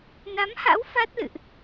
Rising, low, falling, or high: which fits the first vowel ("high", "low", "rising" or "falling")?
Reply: rising